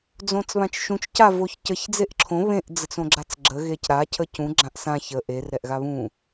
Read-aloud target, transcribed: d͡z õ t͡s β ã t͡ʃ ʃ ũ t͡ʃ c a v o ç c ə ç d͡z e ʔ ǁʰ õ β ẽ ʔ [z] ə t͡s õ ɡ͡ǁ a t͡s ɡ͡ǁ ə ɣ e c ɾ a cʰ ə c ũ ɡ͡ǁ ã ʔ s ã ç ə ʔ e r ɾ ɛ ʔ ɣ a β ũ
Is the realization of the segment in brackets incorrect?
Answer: yes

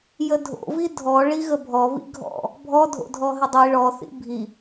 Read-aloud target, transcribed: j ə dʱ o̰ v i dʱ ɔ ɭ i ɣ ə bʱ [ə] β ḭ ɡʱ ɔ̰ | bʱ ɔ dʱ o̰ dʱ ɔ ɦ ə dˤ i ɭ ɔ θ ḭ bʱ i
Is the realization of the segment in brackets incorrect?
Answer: yes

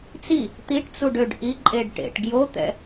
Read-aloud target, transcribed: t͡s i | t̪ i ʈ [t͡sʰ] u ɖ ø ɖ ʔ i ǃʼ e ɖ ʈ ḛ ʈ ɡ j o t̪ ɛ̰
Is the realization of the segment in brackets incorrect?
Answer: yes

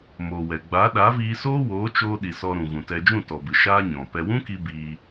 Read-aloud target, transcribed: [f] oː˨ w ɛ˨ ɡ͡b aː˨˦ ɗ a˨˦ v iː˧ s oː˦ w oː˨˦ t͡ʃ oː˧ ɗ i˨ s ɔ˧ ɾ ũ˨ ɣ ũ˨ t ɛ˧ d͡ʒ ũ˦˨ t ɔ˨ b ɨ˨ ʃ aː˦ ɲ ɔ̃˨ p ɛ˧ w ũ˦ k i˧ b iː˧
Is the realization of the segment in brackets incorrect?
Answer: yes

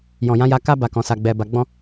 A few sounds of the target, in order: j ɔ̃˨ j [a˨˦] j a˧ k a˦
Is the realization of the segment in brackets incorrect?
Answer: yes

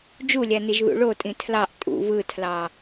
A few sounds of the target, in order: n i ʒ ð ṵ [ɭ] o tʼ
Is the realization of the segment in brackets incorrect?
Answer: no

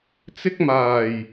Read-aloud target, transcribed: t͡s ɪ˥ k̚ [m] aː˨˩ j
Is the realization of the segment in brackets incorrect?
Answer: no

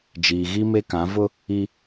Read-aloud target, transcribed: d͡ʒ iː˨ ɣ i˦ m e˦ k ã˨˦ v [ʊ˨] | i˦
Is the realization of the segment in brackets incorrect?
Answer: yes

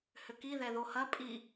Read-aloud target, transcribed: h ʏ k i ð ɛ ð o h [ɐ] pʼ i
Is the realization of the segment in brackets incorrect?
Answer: no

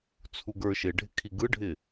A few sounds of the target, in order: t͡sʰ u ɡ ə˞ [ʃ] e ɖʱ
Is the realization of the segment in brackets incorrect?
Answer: no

